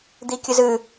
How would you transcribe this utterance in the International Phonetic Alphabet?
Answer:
d̪ikʲɨzɨ

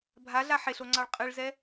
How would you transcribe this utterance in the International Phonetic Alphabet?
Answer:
bʱaɮa ħeɬoŋ͡ǀɑɭ qʼɨɭzɛ

